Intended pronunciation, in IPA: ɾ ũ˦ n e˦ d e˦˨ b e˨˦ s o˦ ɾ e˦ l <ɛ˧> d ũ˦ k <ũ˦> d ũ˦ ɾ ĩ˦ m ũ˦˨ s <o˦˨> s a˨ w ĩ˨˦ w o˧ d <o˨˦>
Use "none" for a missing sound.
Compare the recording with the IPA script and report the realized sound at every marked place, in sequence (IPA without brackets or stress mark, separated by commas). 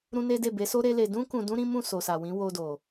e˧, ũ˧, o˨, o˨